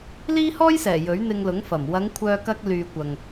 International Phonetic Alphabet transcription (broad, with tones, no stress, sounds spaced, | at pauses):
l iː˥ h ɔː˥ j s ɛː˨˩ j ɵ˨˥ ɥ n̪ ɪ˧ ŋ l ʊ˨˥ ŋ f ɐ˨˩ m w ɐ˨˧ ŋ kʷʰ œː˧ k ɐ˧ k̚ l yː˨ kʷ ɐ˨ ŋ